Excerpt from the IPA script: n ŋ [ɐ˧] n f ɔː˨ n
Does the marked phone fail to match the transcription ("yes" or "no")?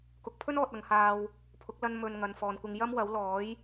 yes